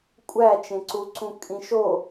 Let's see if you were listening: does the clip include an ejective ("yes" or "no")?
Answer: yes